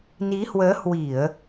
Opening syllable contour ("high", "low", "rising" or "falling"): rising